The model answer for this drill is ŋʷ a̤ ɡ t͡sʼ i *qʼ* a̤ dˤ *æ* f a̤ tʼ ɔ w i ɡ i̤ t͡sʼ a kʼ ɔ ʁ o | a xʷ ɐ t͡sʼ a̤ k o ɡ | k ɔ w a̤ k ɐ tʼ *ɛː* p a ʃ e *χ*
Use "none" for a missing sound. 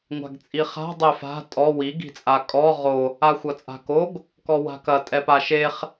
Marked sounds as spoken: χ, ɛ, ɛ, χ

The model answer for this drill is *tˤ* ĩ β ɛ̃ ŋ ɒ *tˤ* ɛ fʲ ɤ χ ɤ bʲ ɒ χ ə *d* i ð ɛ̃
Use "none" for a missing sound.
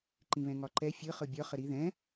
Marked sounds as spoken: ǃ, ǃ, ɾ

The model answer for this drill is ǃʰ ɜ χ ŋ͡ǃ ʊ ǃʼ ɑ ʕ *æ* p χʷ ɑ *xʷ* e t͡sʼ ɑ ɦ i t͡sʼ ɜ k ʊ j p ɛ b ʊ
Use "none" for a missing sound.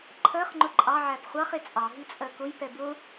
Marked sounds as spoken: æ, χ

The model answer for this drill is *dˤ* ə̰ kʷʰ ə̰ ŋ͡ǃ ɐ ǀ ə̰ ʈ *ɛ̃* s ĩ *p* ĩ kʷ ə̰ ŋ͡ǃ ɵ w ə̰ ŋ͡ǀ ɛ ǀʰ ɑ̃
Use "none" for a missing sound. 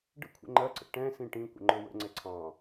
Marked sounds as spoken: ɖ, ɛ̃, ʈ

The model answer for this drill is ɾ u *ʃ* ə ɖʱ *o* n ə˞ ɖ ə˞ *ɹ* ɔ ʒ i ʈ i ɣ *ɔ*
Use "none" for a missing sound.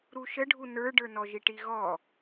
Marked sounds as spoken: ʃ, u, n, ɔ

